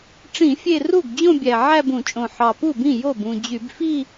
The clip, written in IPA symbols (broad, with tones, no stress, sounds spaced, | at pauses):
ʈ͡ʂ ĩ˧˩˧ fʲ e˥˧ r u˥˩ ɡ d͡ʑ õ˥˧ bʲ æ˨˩ ʕ æ˥˧ b ũ˧˩˧ t͡ʃʼ õ˨˩ ħ ɑ˨˩ p u˥˩ b ĩ˥˩ j o˥˩ b ũ˨˩ d͡ʑ y˧˩˧ b f i˥˧